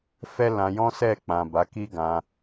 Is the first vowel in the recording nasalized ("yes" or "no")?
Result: no